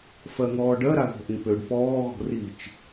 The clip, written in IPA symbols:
f ɜ ŋ ɔː ɖ ɜ ɾ a ð ɔ̤ ʔ ĩ p ø ɖ p ɔː ɣ ɔ̤ r i t͡ʃ

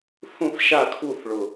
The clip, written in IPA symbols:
θ ũ˥˧ θ ʃ a˥˧ kʰ u˥˧ θ ɭ ʊ˥˧

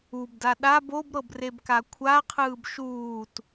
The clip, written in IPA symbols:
u b d a ɗ a b o b ɾ ɤ b r e b k a kʷʰ a qʰ ɯː b ʃ uː t

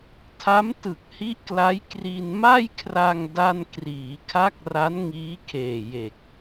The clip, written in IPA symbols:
tʰ a˦˥ m t ɯ˨˩ k̚ h i˦˥ ʔ k l a˦˥ j k r i˧ n m a˥˩ j kʰ r a˧ ŋ d a˥˩ n k r iː˩˦ kʰ a˦˥ k̚ r a˦˥ n ŋ iː˦˥ kʰ eː˨˩ j e˨˩ k̚

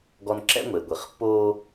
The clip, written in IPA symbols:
ɡ ɔ˦ n ǁ ɛ̰˦ ŋʷ e˨ ɡʷ i˨ χ pː oː˦

